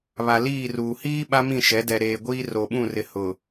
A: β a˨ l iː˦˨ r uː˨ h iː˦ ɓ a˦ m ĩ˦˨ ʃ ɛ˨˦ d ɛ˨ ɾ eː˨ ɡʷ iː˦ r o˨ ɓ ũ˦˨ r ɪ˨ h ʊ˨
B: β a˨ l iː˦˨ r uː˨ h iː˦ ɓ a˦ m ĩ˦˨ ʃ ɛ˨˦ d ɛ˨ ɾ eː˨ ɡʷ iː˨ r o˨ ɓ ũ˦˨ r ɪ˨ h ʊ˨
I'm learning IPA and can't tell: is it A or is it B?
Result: A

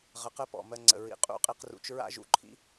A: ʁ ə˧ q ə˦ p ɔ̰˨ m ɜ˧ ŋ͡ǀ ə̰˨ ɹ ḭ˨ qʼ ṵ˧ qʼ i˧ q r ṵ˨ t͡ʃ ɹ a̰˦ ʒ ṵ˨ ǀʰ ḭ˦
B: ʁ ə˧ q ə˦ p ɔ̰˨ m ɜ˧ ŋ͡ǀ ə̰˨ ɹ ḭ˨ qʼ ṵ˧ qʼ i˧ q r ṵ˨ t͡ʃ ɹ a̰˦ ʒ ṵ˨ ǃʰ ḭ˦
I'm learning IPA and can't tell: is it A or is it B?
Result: B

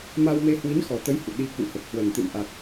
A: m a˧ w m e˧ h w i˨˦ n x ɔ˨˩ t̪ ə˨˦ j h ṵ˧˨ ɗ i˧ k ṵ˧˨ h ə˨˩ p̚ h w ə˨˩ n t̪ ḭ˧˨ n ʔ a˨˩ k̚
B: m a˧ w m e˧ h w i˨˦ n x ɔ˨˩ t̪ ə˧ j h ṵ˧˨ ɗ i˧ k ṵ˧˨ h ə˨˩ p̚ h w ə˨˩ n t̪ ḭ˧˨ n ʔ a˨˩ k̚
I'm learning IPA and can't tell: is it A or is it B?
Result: A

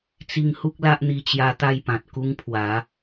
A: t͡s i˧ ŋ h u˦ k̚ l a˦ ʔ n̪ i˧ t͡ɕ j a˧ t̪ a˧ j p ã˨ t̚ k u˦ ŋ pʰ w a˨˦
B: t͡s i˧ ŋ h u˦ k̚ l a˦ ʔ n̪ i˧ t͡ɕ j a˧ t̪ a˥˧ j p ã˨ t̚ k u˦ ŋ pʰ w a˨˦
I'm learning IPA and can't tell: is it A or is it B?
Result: B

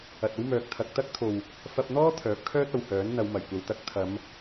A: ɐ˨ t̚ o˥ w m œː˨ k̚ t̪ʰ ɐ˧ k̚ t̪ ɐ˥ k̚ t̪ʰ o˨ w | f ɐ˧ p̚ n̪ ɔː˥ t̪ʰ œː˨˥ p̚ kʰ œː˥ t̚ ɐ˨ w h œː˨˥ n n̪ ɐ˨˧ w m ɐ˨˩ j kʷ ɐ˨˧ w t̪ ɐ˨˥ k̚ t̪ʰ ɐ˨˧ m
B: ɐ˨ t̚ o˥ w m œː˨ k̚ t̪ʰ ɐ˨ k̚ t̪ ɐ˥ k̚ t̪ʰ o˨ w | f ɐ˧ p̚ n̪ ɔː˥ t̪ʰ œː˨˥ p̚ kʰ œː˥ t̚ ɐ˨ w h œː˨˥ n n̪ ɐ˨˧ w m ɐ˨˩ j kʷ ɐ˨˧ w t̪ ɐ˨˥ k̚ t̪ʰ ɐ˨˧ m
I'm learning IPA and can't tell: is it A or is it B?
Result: A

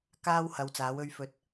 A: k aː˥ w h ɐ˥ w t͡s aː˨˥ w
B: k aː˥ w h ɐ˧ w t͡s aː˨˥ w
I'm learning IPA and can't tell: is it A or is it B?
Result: B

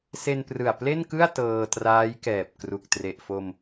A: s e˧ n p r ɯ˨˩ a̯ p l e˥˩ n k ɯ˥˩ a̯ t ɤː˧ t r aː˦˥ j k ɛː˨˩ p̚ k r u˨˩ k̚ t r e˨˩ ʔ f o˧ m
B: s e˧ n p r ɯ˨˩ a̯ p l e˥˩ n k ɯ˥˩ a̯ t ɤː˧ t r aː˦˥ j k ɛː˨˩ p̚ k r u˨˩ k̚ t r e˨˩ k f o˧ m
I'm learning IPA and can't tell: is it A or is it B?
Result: A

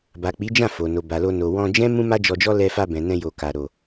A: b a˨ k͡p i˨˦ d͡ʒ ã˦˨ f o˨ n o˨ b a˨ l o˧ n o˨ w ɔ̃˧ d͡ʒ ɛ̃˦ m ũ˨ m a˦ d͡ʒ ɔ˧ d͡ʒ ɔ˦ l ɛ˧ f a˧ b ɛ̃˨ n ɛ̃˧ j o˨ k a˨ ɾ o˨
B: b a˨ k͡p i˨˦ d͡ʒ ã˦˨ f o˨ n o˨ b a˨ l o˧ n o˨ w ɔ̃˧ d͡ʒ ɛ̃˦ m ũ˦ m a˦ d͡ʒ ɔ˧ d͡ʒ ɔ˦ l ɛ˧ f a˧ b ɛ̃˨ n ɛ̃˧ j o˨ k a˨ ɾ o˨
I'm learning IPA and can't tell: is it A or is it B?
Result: B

